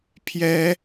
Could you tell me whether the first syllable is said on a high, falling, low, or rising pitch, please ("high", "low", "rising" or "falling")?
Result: high